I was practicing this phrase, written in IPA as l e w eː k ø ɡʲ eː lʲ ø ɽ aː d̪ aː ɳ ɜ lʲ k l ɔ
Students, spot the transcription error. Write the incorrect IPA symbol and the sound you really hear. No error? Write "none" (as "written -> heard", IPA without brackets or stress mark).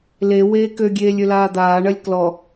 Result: ɽ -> l